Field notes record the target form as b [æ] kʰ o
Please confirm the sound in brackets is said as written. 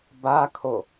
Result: no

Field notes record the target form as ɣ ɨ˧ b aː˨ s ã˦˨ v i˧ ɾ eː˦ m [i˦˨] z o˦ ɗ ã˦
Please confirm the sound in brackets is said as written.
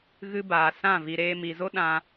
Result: no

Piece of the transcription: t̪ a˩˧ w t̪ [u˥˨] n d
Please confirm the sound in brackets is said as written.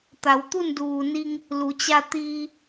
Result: yes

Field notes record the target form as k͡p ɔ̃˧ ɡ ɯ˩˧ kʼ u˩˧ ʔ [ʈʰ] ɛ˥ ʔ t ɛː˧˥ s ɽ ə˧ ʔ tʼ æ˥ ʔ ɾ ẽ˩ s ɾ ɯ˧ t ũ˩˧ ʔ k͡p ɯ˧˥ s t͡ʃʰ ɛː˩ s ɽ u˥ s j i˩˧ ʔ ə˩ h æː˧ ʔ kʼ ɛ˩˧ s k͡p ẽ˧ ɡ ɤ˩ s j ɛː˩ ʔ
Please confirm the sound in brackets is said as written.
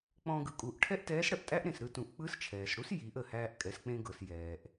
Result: yes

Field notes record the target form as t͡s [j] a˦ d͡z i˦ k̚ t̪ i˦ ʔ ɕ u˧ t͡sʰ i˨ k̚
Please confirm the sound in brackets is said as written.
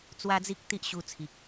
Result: no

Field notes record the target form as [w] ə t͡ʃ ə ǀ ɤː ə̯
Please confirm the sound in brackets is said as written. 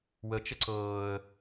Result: yes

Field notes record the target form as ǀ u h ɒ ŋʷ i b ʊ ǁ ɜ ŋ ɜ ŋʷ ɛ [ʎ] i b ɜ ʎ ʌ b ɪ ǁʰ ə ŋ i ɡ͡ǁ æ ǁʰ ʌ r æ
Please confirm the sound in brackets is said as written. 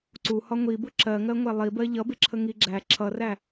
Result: no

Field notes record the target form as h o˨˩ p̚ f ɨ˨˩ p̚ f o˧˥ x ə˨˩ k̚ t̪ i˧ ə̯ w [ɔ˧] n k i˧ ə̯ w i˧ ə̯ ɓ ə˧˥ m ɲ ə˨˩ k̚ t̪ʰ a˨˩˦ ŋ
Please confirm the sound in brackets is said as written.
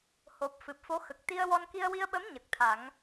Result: yes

